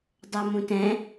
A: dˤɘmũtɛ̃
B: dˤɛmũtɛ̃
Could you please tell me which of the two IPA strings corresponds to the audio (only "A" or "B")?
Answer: B